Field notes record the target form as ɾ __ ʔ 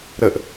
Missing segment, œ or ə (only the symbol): ə